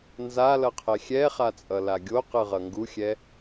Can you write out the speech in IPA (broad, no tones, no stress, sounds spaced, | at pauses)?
n z a l ʌ qʰ ɛ xʲ ɛ χ a t͡sʼ ʌ l a ɡʲ o q ɯ ʁ ʌ ŋ ɡ u xʲ ɛ